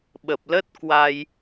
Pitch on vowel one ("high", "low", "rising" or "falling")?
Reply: low